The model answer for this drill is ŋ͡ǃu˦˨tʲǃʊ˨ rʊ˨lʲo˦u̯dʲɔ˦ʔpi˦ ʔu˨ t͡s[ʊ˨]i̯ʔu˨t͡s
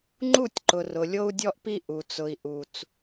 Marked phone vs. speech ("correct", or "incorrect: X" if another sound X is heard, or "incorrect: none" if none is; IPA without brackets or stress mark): correct